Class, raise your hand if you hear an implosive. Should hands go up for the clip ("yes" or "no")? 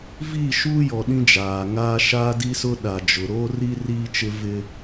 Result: yes